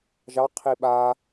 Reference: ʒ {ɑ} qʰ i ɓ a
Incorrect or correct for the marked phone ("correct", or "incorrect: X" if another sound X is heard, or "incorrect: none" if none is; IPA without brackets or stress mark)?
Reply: correct